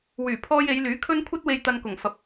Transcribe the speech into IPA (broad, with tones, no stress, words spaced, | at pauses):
wyː˨˩pʰɔː˧j e˨˧jlyː˨˥kʰɵ˥n kʷʰɐ˥t̚we˧j t̪ɐ˧nkʊ˨˩ŋfɐ˨p̚